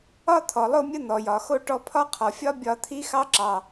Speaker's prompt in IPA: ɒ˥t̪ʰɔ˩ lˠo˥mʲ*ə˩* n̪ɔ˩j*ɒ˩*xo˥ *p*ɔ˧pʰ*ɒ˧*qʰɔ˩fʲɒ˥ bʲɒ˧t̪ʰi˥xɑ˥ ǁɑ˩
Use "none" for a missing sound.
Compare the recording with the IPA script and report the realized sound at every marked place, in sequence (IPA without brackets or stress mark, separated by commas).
ə˥, ɒ˩, ʈ, ɒ˥